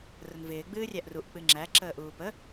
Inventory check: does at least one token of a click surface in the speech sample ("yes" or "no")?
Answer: yes